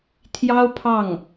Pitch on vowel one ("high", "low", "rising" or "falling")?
high